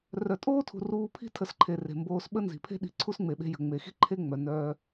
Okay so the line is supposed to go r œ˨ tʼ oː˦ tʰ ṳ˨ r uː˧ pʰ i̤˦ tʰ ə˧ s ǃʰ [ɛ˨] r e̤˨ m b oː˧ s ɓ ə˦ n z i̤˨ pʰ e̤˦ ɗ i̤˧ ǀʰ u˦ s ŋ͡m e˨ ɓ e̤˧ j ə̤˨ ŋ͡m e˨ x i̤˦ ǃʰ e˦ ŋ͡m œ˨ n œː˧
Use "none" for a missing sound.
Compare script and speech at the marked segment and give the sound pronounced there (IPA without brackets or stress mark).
e˨